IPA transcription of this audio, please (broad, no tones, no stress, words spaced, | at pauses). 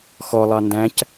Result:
xɔlˠɑ ndæ̃c